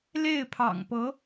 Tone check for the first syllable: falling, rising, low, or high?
falling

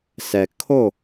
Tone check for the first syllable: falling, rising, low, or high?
low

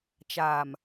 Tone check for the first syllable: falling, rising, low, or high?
low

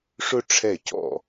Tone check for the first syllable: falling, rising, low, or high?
falling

